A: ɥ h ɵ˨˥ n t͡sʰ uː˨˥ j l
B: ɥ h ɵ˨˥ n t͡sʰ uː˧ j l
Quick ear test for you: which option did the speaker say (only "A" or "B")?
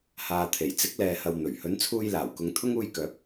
B